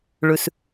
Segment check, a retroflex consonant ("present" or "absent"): present